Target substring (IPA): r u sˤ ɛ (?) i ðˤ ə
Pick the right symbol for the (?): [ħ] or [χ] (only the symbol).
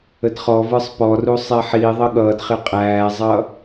ħ